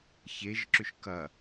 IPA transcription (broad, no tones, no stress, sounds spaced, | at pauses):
ç e ʒ ǁ ʏ ʃ k ɐ